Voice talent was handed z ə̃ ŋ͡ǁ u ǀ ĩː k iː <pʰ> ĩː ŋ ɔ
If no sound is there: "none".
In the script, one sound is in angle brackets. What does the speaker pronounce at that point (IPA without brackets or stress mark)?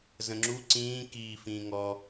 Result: f